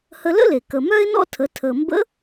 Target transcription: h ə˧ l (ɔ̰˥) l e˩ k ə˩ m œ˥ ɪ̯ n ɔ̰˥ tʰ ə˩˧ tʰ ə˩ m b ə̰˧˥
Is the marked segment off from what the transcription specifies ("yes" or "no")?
yes